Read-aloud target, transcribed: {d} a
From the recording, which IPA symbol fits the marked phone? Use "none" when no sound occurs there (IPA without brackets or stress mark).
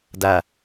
d